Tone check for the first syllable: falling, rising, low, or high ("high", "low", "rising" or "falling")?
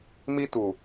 high